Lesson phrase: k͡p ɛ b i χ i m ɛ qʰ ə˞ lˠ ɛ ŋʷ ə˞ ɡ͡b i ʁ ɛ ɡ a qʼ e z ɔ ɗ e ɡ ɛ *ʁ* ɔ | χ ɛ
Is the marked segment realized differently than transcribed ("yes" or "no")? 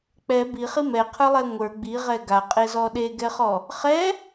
yes